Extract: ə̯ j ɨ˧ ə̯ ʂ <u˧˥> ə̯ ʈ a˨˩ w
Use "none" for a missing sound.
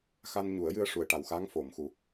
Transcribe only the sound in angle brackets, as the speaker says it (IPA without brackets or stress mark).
u˨˩